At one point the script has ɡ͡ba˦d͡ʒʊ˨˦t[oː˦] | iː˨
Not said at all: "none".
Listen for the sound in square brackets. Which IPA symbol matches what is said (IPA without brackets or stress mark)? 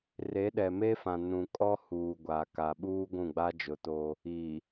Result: oː˦